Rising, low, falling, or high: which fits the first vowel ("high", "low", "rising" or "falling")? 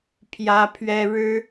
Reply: high